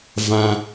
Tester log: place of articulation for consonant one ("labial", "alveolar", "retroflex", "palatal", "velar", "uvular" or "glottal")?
labial